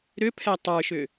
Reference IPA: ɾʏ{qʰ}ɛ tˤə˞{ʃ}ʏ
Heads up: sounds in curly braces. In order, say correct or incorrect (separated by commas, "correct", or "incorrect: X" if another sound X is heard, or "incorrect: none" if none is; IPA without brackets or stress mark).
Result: incorrect: pʰ, correct